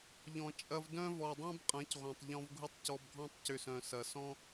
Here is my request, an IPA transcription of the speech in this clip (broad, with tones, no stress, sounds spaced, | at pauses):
ʎ ɔ̃˨ t͡ʃʼ ɐ˧ v d œ̃˦ v ɔ˨ dˤ œ̃˦ b qʼ ɐ̃˨˦ c ʁʷ ɐ̃˨ tˤ ʎ ɔ̃˧ v ɡʱ ʊ˦ tˤ c ɔ˧ b ɡʱ ɔ̃˦ tˤ c ʏ˧ s œ̃˨ s ɐ˨ s ɔ̃˦